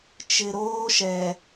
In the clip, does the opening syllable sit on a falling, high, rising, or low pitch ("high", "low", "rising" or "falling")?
low